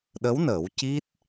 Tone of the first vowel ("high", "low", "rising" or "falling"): rising